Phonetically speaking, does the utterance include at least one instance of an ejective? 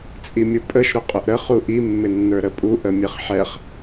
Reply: yes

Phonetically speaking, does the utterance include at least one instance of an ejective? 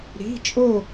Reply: yes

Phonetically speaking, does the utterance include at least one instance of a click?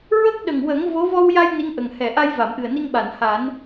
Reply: no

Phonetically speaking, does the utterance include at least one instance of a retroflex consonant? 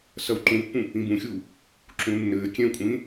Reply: no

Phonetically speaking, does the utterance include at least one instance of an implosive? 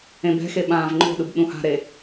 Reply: yes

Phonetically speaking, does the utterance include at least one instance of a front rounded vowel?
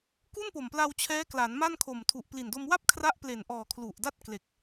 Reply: no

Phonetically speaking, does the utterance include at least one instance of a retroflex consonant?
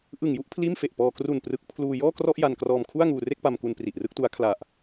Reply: no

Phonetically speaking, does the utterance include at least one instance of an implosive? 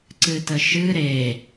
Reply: no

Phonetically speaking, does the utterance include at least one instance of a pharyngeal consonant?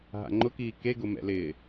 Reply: no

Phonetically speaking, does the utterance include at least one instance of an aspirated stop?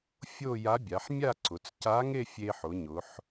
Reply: no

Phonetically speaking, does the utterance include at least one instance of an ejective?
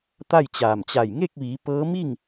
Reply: no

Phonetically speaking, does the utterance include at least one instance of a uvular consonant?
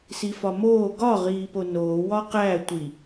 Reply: yes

